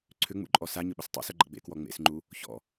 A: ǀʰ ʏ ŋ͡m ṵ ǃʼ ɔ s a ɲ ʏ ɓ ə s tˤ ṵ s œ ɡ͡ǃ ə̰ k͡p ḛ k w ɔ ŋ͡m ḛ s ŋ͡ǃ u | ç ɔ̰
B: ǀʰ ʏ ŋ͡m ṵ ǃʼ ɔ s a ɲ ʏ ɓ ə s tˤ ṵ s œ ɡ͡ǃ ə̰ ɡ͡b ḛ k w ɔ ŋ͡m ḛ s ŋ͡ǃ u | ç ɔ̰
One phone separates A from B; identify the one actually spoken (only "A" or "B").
B